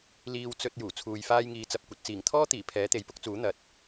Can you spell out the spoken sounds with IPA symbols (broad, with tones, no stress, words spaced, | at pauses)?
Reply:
liː˧wt͡sɵ˧t̚ juː˨˩t͡sʰuː˨jfaː˥j ŋiː˧t͡sɐ˧p̚kʷɐ˨t̚ t͡siː˨˩ŋt̪ʰɔː˥t̪iː˨˩ pʰɛː˨˥t̪e˨˥jpʊ˥k̚t͡suː˨˥ n̪ɐ˨t̚